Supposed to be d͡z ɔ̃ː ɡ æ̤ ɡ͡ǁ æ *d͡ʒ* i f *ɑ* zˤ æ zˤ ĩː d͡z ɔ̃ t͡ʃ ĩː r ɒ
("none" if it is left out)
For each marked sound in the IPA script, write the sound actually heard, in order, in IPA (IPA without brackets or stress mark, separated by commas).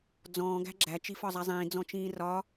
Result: t͡ʃ, ɒ